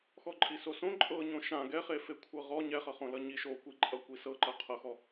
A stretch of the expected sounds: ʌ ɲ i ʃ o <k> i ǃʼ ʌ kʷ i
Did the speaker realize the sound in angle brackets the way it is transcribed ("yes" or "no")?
no